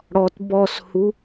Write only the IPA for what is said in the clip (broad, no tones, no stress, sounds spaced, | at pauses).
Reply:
ɽ ɔ t b ɔ s h u